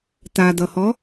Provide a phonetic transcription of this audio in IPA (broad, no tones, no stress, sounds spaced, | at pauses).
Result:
t a d ʌ h ɔ